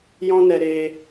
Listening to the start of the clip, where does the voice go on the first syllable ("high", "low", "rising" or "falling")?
high